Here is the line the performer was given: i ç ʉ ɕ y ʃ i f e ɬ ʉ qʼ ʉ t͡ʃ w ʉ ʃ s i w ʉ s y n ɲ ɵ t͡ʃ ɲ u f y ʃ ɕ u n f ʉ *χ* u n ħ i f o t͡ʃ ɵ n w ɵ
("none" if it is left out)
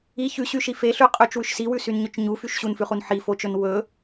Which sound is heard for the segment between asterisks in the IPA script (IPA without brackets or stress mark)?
χ